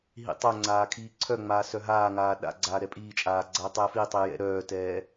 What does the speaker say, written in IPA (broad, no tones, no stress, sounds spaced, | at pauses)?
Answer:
ɦ ḭ tˤ œ ŋ͡ǀ aː kʰ iː ǀʰ œ ŋ͡m aː s œ ɦ aː ŋ aː ɗ a̰ ɡ͡ǀ aː ɾ ɛ pʼ iː t͡ʃʼ aː ɡ͡ǀ a tˤ ɛ f i tˤ i j ɛ̰ ɾ œː t ɛː